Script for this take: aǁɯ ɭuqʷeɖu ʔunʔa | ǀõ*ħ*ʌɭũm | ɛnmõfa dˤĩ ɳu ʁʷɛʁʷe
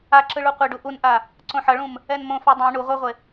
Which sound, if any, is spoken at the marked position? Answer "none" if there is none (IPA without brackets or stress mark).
ħ